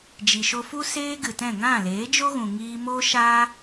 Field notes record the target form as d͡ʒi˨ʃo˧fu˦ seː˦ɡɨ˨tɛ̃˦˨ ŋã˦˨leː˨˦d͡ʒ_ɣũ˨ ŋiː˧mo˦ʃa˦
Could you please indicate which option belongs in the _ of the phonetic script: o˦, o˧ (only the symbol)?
o˦